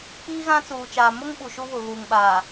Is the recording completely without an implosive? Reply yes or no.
no